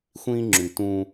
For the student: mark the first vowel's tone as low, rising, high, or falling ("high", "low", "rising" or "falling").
high